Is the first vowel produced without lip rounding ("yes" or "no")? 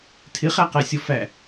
yes